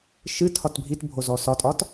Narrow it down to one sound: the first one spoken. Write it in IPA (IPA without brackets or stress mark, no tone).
ʃ